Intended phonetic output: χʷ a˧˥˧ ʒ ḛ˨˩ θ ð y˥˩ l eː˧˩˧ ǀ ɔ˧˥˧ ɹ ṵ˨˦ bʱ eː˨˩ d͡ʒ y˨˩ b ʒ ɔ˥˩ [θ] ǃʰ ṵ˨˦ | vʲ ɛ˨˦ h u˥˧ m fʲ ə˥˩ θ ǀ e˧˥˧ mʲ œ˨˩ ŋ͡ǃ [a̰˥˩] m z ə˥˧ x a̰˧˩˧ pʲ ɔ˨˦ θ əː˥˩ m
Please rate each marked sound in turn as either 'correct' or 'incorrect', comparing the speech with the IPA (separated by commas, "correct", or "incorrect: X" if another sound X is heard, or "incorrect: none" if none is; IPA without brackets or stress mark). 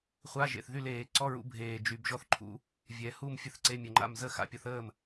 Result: correct, correct